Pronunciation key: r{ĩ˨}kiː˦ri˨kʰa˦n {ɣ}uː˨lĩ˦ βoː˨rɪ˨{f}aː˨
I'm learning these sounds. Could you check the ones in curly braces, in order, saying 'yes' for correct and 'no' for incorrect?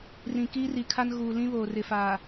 yes, yes, yes

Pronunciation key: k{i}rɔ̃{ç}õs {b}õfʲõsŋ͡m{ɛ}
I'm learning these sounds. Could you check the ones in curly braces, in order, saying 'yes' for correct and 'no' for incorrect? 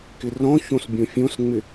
no, yes, no, no

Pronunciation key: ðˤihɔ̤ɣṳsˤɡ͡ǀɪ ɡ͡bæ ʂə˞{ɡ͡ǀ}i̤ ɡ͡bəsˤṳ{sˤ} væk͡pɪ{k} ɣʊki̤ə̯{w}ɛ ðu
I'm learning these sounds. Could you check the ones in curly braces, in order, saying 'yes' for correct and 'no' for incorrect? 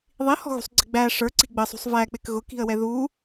no, yes, yes, yes

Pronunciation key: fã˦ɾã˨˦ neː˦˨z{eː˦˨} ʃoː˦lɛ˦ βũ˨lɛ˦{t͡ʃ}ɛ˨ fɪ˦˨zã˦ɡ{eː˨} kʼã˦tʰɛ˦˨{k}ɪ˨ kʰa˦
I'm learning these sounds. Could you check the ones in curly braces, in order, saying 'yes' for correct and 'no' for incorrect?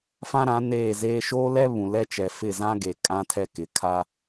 no, yes, no, yes

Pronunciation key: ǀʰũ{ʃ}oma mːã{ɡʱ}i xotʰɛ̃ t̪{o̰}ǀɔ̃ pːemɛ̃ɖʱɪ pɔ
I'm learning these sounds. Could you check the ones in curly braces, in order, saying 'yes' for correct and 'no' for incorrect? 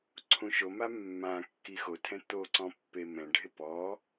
yes, no, no

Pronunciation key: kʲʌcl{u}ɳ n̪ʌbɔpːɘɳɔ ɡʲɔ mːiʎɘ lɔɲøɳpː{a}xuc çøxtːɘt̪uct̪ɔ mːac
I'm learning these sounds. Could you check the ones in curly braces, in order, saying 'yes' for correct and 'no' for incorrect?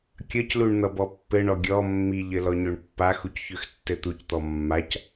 yes, yes

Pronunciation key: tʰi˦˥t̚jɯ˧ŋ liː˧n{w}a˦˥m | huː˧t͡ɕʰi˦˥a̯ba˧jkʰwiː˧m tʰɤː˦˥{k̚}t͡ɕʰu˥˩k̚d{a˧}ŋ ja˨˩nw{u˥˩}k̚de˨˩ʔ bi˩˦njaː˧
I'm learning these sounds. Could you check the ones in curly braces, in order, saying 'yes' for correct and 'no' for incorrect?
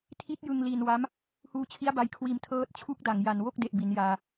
yes, no, no, no

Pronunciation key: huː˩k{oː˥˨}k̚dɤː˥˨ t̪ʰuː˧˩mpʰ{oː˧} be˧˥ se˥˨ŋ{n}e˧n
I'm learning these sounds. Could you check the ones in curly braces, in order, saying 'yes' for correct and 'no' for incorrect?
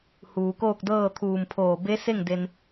yes, no, no

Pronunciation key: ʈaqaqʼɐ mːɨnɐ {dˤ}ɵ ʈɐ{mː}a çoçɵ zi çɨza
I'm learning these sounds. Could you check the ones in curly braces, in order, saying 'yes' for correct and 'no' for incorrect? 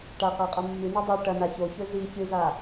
yes, no

